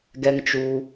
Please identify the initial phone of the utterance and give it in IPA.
ɡ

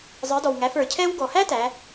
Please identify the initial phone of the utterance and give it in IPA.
zˤ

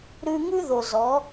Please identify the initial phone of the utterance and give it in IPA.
ɾ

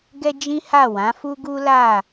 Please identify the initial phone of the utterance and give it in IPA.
ɡ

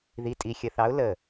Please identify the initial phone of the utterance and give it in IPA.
ð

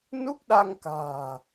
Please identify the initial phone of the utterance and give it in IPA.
n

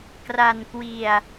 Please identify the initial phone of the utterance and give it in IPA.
k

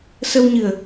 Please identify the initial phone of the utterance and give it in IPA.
s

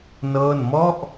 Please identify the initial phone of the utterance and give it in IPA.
n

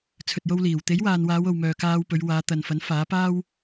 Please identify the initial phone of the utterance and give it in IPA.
t͡sʰ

